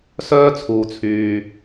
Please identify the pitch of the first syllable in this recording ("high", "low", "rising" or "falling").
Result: high